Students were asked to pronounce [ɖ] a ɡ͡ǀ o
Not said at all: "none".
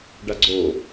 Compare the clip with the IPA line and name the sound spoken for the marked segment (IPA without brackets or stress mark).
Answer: ɖ